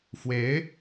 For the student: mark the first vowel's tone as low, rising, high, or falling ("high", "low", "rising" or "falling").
rising